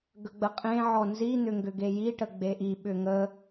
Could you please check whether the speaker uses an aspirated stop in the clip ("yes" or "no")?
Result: no